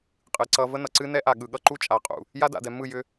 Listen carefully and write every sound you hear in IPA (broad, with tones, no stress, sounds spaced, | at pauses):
qʼ ɨ˨ ǀ ʌ˨ v ə˦ n ʌ˨ ǀ ɨ˦ n ɛ˦ ʔ a˨ ɠ ɯ˨ ɠ ʌ˦ ǃ u˦ t͡ʃʼ a˨ qʼ ṵ˨ | j a˦ d a̰˨ d ɛ˨ mː ɯ˦˨ j ʏ˦